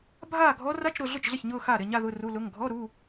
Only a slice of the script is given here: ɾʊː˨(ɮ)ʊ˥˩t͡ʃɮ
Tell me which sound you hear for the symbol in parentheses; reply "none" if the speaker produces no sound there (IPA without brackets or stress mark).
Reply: ɮ